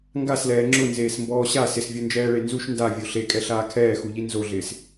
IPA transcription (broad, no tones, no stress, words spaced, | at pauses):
ŋɡaslɛː ŋ͡ǁʊnzeːsmbɔː ɕa sɪsvʲond͡ʒɛːɭe nzuʃ ndavʲo ɬekʼɛɬaː kʰɛːxuʎi nzoɮɪːs